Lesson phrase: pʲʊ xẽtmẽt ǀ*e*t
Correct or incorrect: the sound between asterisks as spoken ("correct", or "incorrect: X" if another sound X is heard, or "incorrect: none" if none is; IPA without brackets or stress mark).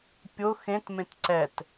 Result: incorrect: ɛ